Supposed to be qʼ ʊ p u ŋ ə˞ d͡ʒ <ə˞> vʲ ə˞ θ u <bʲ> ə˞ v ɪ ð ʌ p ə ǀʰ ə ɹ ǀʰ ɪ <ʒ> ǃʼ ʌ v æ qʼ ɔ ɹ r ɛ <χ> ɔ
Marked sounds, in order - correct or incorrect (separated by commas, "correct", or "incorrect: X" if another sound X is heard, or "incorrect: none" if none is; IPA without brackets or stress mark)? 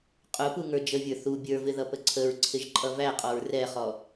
incorrect: ə, correct, correct, correct